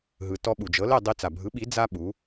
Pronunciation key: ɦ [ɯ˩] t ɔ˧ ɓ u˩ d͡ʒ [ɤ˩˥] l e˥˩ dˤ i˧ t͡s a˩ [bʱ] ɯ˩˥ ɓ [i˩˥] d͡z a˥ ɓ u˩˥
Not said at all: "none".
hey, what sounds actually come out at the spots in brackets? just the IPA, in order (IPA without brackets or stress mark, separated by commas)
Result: ɯ˩, ɤ˩˥, bʱ, i˩˥